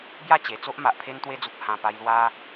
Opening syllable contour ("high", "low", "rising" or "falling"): falling